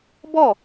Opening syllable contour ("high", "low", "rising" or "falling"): falling